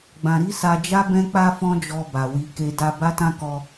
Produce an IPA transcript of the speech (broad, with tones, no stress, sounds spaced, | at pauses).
ɡ͡b ã˨ ɾ i˧ s a˧ d͡ʒ a˦ b ɛ̃˧ k͡p a˧ f ɔ̃˧ d͡ʒ ɔ˧ b a˨ w i˧ k e˧ d a˧ b a˦ t ã˦ k ɔ˧